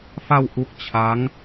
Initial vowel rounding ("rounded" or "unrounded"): unrounded